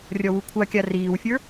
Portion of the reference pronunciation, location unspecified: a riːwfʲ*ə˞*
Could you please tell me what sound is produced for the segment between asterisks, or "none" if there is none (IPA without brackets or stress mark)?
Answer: ə˞